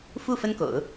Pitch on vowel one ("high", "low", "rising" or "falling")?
falling